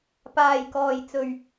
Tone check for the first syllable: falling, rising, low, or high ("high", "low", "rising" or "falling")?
low